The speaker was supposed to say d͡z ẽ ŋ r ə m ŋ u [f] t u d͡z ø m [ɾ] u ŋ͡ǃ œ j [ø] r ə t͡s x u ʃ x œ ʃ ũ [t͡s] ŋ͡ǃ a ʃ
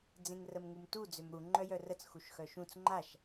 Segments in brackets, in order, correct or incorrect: incorrect: m, correct, incorrect: œ, correct

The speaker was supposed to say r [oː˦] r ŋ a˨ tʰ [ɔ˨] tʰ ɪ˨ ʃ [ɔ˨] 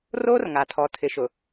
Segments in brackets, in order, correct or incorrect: correct, correct, incorrect: ʊ˨

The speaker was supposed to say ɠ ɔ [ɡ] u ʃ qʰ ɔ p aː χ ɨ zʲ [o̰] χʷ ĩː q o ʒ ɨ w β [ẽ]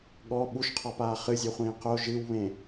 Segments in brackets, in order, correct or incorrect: incorrect: ɓ, incorrect: o, correct

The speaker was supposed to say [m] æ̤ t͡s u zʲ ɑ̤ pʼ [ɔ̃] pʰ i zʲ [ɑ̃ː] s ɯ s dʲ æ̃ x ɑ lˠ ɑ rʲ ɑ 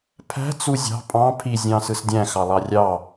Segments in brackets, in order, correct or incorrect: incorrect: pʰ, incorrect: ɑ̃, correct

